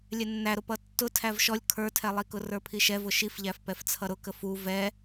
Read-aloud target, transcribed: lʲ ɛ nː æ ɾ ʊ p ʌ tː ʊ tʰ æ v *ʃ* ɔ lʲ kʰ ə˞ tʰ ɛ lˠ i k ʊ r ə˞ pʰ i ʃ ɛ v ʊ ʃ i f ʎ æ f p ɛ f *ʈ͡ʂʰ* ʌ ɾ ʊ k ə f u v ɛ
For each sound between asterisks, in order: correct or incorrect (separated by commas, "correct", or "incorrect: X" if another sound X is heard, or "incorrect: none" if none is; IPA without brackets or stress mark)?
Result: correct, incorrect: t͡sʰ